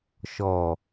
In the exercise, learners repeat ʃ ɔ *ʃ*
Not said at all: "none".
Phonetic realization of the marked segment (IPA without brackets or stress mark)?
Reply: none